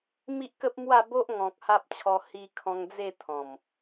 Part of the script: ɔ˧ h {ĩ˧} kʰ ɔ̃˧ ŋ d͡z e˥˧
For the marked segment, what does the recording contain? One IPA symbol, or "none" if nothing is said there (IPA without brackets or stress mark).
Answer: i˧